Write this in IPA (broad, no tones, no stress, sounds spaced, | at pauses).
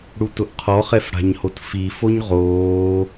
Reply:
ɽ u t ʊ ʔ qʰ ɔ χ ɛ f ɽ a̤ ɲ h o t f i f o ɲ ʁ oː